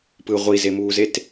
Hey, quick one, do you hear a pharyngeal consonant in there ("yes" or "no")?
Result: no